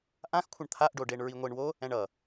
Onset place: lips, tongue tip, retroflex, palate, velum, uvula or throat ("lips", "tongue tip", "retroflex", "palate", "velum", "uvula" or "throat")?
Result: throat